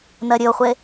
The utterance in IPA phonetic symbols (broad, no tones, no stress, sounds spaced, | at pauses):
n ɜ ɾʲ ɵ o̯ χʷ e